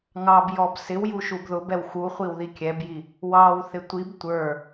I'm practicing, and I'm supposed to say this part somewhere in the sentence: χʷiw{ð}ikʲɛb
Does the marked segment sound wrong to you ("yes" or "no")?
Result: no